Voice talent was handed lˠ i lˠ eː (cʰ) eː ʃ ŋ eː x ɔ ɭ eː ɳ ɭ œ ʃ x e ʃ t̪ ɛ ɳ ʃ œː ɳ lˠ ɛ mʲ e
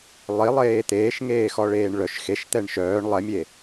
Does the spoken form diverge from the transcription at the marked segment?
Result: yes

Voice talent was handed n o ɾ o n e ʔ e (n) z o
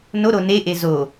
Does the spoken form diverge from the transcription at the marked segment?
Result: yes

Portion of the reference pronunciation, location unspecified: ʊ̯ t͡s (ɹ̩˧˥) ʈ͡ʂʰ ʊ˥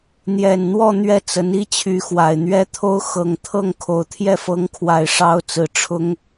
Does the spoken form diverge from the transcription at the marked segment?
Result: yes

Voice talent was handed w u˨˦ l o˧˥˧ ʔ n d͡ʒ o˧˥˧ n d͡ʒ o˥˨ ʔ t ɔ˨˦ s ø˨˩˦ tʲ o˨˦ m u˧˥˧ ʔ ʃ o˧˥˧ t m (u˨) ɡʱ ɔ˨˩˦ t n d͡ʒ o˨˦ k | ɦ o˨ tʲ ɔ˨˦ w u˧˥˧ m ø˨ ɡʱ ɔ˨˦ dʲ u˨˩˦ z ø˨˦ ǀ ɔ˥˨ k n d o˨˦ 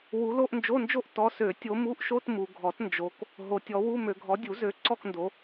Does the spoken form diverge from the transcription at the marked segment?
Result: no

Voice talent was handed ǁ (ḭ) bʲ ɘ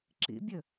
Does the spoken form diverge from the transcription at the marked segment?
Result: no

